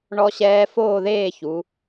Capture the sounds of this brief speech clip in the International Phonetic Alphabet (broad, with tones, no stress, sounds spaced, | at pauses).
ɳ ɔ˦˥ ɕ ɛː˦˥ f oː˥˧ ð eː˥˧ ç u˩˧